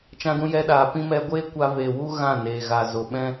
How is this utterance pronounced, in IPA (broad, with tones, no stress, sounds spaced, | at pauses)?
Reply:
t͡ʃ ã˧ d ũ˧ j ɛ˧ ɗ aː˨ p ĩ˧ m ɛ˧ ɡʷ eː˦ kʷ a˧ v eː˨ w u˦ ɣ ã˦˨ n eː˨ ɣ a˨ z o˨ ɓ ɛ̃˦